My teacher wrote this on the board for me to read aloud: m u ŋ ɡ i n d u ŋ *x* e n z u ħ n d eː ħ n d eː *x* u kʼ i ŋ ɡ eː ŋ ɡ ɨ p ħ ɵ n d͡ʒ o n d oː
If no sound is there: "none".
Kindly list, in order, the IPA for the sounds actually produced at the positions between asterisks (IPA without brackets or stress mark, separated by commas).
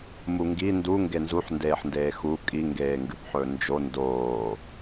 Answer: ɡ, x